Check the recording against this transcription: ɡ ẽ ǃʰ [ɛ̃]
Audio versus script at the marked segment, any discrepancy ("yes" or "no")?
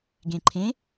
yes